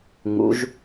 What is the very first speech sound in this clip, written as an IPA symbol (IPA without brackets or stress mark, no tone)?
ŋ